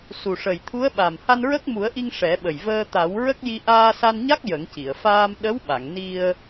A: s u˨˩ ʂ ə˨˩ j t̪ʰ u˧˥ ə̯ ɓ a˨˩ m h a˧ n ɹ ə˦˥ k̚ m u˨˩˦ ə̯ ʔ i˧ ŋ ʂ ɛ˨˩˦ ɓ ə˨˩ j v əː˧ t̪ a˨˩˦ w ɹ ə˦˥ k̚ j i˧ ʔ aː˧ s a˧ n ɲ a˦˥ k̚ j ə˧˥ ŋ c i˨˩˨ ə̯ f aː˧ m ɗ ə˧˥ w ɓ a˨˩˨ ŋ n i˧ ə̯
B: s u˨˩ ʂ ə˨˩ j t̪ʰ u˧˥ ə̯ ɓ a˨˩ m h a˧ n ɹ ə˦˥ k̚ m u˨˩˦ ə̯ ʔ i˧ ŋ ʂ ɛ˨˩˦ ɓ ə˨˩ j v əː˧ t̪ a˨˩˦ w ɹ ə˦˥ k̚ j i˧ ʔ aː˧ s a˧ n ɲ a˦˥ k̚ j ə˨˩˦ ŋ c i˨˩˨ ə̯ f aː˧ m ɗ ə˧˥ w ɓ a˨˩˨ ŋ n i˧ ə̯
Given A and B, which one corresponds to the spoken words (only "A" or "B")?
B